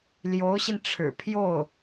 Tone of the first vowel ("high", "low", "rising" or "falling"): rising